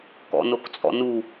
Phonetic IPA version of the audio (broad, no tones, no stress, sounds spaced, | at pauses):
k ɔ̰ n o k t͡sʼ ɔ̰ n u